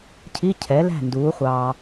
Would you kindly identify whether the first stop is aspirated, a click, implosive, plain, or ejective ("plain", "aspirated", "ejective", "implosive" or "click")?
aspirated